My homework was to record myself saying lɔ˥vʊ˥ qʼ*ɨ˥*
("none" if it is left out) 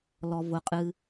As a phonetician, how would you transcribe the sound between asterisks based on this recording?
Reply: ɨ˥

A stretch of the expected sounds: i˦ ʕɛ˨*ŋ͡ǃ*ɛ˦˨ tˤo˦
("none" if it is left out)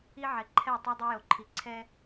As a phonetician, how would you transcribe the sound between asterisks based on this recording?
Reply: ǃʰ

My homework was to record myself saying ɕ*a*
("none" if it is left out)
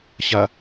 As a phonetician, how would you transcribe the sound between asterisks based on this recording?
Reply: a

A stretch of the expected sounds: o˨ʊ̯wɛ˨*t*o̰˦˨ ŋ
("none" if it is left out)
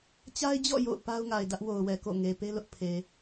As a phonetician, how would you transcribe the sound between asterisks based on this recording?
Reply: k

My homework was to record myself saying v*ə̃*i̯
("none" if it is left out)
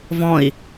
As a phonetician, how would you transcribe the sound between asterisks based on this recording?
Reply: ɔ̃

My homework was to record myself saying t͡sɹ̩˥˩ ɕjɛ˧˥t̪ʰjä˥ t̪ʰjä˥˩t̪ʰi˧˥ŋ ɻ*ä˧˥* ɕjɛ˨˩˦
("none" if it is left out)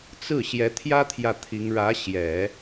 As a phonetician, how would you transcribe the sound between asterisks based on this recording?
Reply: ä˧˥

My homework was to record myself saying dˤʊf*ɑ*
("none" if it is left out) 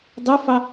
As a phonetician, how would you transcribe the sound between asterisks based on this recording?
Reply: ɑ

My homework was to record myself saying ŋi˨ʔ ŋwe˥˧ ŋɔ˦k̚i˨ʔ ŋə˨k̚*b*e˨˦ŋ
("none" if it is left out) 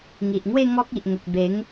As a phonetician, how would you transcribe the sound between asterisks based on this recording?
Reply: b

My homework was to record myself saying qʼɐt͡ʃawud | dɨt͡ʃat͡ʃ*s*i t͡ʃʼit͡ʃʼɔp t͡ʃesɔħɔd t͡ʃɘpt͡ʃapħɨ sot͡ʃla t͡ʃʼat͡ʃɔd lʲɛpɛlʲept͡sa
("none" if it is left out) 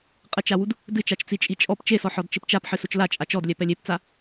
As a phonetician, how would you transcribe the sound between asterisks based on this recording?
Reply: t͡s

